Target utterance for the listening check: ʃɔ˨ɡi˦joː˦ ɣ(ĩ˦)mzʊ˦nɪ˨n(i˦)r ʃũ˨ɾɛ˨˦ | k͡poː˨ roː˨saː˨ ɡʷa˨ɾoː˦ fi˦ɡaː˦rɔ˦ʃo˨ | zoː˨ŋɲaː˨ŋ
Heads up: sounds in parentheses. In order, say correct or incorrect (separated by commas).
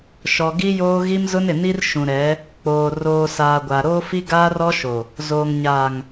incorrect, correct